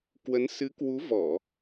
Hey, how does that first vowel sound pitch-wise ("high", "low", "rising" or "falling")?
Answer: rising